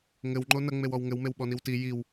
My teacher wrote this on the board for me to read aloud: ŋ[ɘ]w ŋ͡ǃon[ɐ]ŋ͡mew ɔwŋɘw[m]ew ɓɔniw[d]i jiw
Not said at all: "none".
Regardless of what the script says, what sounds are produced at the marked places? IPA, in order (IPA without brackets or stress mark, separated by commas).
ɘ, ɐ, m, t